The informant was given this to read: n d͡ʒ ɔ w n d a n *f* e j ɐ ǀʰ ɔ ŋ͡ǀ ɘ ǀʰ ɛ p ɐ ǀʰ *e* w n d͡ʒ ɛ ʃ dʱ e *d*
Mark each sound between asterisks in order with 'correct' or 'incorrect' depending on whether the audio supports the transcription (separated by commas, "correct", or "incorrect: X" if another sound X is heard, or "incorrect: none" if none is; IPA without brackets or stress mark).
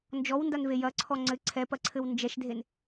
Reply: incorrect: v, incorrect: ɘ, incorrect: n